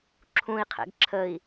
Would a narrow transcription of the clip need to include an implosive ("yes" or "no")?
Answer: no